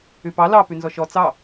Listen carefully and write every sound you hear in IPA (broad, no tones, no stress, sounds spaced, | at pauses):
y p ɑ l ɑ p y n z ɔ ʃ ɔ t͡s ɑ